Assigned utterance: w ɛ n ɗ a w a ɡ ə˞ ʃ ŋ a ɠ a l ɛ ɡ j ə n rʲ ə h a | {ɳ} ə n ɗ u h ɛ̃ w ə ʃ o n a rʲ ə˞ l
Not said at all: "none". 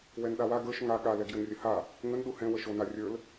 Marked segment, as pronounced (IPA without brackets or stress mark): ŋ